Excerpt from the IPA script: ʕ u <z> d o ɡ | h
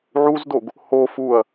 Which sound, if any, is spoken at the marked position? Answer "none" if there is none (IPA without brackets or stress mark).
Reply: z